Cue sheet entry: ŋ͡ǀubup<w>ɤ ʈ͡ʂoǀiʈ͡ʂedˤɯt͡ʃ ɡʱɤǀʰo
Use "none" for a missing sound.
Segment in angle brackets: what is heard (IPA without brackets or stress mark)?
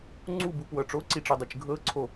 w